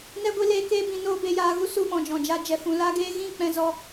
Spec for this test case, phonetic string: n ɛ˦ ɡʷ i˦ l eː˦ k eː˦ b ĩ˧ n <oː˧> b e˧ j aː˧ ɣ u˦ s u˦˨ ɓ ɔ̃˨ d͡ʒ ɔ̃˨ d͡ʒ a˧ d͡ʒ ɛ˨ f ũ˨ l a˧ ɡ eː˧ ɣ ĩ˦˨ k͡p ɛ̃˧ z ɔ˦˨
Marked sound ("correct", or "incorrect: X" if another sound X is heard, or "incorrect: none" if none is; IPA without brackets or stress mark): incorrect: oː˦